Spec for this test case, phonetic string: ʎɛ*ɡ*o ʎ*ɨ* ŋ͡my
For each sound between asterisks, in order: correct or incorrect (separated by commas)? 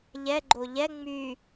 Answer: incorrect, incorrect